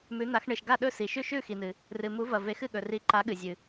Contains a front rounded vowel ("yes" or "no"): no